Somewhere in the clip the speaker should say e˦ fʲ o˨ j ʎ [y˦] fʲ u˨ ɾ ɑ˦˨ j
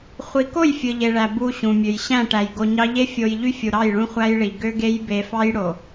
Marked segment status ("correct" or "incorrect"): correct